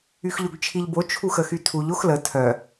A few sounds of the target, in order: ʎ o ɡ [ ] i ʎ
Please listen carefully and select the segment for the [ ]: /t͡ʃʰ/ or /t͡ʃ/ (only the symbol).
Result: t͡ʃʰ